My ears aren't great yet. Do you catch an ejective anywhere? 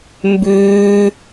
no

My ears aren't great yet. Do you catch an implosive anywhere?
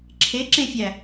no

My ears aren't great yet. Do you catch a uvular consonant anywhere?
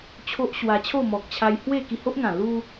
no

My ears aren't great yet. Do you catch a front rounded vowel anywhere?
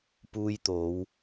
no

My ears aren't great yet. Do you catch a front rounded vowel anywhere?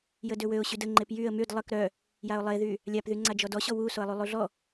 yes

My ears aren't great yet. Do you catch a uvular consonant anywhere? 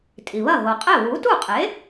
yes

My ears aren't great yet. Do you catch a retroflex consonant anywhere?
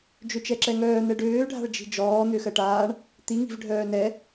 yes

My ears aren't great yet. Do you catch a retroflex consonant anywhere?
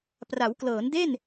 no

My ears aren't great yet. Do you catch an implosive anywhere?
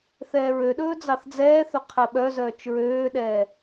yes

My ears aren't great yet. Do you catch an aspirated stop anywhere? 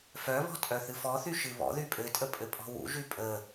no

